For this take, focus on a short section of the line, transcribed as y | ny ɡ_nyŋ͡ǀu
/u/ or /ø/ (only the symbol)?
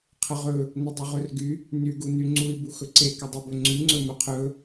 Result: u